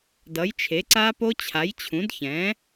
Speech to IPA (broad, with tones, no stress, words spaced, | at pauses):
dʌ˩˥jt͡ʃʰe˩˥ǀa˦˥po˦˥ t͡ɕʰa˩˥jt͡ɕʰũ˩˥d çɛ̃˩˥